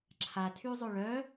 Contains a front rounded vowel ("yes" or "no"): yes